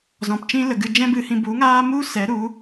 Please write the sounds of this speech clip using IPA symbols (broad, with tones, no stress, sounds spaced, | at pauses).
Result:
z ɔ̃˨ p t͡ʃ ĩ˦ l ə˨ ɡ ɨ˧ d͡ʒ ɛ̃˦ b ɨ˧ h ĩ˧ b u˨˦ ŋ aː˦ m u˦ s ɛ˨˦ ɾ u˨˦